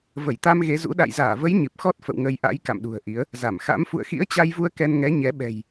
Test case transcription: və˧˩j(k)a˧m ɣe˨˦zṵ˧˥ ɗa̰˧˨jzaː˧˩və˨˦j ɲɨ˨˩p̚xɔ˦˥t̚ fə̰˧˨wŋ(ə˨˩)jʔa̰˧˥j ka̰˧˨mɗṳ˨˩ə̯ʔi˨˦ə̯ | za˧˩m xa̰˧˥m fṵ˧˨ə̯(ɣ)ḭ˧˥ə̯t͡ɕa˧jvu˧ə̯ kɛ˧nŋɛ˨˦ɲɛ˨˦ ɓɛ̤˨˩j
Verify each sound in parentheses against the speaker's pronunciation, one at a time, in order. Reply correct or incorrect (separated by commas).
incorrect, incorrect, incorrect